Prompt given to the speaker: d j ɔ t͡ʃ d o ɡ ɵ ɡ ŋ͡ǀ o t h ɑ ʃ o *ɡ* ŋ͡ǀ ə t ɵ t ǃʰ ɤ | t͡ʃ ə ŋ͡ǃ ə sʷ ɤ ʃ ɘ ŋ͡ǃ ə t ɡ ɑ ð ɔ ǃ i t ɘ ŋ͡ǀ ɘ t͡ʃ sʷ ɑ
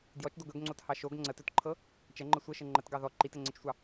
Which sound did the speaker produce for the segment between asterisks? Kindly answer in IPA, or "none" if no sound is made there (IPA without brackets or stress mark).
ɡ